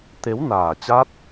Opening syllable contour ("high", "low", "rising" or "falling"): rising